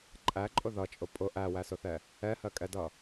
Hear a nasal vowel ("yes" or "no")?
no